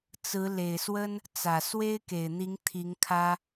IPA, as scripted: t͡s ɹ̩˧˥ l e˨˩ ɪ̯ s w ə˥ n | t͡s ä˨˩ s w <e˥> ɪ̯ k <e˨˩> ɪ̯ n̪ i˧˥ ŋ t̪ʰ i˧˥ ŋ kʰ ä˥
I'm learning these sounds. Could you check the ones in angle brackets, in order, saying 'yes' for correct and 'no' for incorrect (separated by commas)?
yes, yes